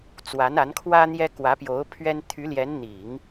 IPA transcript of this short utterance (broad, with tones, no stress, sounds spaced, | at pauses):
t͡s w a˧˥ n a˧˥ n kʰ w ä˥ n̪ j ɛ˥ k w ä˧˥ p j o˧˥ ʊ̯ pʰ ɥ ɛ˥ n t̪ʰ y˧˥ l j ɛ˧˥ n n̪ i˨˩˦ ŋ